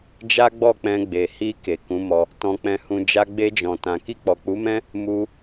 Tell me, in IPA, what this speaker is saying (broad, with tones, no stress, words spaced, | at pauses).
d͡ʒa˦ɡ͡bɔ˦˨k͡pɛ̃˧ɡ͡be˨ hi˧ ke˨kũ˨˦mɔ˧ | tɔ̃˧k͡pɛ̃˧hũ˧ d͡ʒa˧ɡ͡be˧d͡ʒɔ̃˨tã˨ ki˧k͡pɔ˨k͡pu˨˦mɛ̃˦ | mu˧